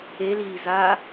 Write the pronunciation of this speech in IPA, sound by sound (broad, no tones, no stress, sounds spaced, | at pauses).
e l iː z a